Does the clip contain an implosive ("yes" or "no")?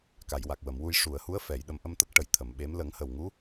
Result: yes